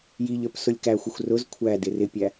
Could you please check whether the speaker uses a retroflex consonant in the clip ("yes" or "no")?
no